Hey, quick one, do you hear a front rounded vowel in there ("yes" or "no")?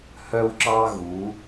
yes